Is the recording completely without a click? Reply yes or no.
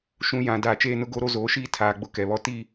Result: yes